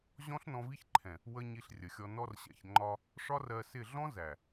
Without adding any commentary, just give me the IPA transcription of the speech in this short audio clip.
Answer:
ʑɔ̃˦ɬnɔ̃˧vi˦çǃʰɛ̃˨ | wə˦ ɲi˧ɬrʲə˨xʲɔ˧ nɔ˧rɕɛ̰˨çŋ͡ǃɒ˧ | ʂɒ˦rɜ˧sɪ˦˨ ɮɔ̃˦zæ˨

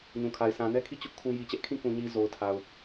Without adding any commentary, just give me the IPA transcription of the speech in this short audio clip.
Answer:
ɲũ˨kʰa˨ɪ̯ sʰã˨nɛ˦kʰi˦˨ t͡ɕʊ˦ʔkʰũ˦ ji˨t͡ɕɛ˦ʔ kʰĩ˦˨kũ˨ɲi˨ zo˨ʊ̯tʰa˨ʊ̯

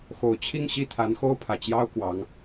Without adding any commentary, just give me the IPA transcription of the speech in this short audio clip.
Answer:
xo˨˩ʊ̯ t͡ɕʰi˥˧ŋɕi˥˩t̪ʰa˧˥nxo˥ʊ̯ pʰä˨˩t͡ɕjɑ˥ʊ̯ kwɑ˧˥ŋ

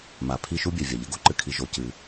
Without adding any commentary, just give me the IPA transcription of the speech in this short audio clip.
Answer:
ma˩ pʰi˧ ʃu˥bʲɛ˩vʲa˩ʎɘ˥ ɡo˥ǃɨ˩kʰi˩ ʒo˩cɨ˩

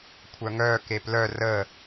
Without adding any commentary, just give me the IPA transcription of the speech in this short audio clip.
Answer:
kʷʰœŋœ keplœ rə

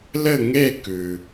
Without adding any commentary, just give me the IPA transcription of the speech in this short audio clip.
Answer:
lɘ˥˧ŋe˥˧ kʉ˩

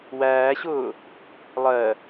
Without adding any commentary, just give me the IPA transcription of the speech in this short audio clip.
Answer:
wæːɕʊː | lˠɜ

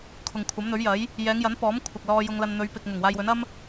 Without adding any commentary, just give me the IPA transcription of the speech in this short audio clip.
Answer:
kʰʊ˨ŋkʷʰɐ˨˥mn̪ɵ˨˥ɥ jɐ˨˥j | jɛː˨˧ŋjɐ˨˥n pɔː˨˥mkʷʰɐ˨k̚ lɔː˧jʊ˧ŋ lɐ˧nn̪ɵ˨˧ɥpɪ˨k̚ ŋʊ˨˩ŋwaː˧jwɵ˨˥n ɐ˥m

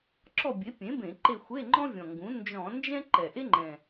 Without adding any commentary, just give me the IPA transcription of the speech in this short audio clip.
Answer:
ǁɔ˦˨bʲe˩˥pʲẽ˩˥ bẽ˧˩˧ǃe˦˨xʷe˧˥˧ ŋ͡ǃɔ̃˥vʲɔ̃˨˩ŋɡũ˩˥ nd͡ʒɔ̃˧˩˧nd͡ʒɛ̃˥ ǃɛ˨˩ʔe˥ŋ͡ǃɛ̃˨˩

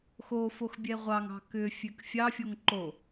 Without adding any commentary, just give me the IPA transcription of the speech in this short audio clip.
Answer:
xofox bʲɛʁʷɑŋɑ̤ kʏfʲøk fʲɑfʲoŋ ǃo

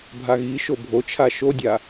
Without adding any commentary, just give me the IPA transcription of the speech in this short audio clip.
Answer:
bʱaɣiʃo bʱot͡ʃʰa ʃodʲa

